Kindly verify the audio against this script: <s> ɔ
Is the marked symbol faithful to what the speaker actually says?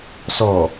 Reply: yes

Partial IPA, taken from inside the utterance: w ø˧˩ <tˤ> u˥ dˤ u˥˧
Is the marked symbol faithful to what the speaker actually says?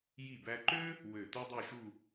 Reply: no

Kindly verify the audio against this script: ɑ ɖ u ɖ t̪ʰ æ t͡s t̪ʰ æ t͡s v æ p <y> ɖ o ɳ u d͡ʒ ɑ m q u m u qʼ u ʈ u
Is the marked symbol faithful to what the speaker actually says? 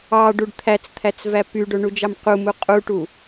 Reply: yes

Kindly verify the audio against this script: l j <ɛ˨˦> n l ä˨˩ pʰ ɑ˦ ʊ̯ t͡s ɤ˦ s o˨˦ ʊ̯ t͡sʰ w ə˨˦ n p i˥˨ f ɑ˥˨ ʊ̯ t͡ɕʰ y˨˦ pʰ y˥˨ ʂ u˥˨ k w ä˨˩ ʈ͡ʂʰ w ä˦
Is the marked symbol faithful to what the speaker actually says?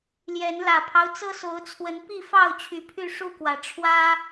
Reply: yes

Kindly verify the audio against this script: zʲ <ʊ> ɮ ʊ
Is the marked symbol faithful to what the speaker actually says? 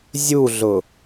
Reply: no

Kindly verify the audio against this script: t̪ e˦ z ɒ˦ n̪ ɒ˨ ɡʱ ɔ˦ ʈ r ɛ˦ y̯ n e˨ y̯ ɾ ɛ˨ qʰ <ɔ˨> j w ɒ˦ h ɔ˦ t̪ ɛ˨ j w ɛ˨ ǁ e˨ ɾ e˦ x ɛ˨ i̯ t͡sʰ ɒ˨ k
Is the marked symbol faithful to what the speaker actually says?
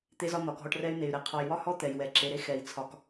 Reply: yes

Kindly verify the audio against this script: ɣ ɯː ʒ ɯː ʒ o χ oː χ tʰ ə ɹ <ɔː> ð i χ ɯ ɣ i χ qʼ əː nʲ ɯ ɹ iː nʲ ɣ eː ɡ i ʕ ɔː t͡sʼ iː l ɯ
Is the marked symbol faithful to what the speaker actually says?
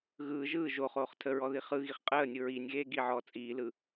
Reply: no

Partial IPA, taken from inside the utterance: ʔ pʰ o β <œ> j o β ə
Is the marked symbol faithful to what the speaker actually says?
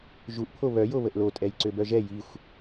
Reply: yes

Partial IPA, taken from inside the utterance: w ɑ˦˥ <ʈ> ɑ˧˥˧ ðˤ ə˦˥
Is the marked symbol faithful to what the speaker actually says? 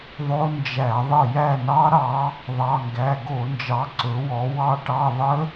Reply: yes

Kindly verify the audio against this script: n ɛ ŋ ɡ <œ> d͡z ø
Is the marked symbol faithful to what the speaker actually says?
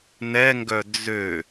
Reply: yes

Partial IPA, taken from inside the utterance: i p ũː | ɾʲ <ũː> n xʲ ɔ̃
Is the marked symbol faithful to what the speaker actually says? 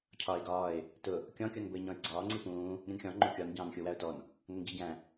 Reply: no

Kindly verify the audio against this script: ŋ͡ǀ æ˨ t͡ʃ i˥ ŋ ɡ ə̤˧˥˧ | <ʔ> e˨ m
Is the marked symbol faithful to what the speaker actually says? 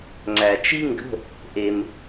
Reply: yes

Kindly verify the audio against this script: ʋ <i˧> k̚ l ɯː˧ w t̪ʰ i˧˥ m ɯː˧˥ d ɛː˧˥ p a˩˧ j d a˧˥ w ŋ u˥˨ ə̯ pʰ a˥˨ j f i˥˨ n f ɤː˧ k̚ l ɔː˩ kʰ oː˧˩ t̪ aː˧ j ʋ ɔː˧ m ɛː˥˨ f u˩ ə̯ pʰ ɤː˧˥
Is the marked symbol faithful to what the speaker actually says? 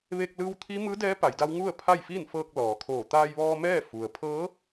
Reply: no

